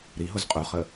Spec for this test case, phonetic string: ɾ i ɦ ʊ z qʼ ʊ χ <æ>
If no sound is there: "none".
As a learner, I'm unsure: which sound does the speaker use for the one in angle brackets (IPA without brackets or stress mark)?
ə